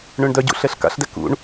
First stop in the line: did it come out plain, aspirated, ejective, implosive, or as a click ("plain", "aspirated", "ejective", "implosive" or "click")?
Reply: plain